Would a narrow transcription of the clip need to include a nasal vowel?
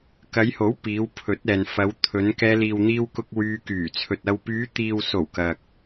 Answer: no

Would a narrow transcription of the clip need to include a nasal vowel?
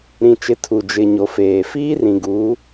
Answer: yes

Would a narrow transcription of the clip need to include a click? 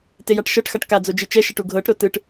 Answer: no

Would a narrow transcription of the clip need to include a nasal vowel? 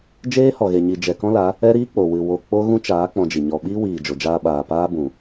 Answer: yes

